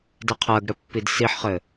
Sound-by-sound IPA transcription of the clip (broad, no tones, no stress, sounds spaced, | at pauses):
d ɛ qʰ ɜ ɡ ɽ ɘ pː i d s i ħ χ ɘ